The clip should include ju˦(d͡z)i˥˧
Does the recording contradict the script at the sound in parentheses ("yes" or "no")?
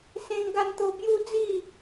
no